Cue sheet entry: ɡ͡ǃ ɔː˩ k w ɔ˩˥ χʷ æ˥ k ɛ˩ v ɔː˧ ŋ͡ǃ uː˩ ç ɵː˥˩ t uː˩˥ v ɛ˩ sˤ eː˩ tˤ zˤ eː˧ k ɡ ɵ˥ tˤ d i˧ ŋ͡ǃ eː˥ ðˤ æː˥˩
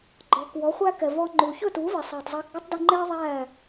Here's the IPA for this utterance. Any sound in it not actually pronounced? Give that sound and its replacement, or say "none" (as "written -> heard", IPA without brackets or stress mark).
none